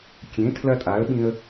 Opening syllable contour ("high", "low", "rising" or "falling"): rising